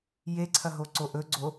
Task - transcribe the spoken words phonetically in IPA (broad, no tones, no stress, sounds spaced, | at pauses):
j e ǀʰ ɐ ɦ o ǀ o ʔ ɵ ɡ͡ǀ o